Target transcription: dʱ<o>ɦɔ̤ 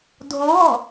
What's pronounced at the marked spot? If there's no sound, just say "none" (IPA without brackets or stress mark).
o